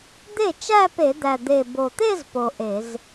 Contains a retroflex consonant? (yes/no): no